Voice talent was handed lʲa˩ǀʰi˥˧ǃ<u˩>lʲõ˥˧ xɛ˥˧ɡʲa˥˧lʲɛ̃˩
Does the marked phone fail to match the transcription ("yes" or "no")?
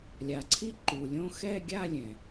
no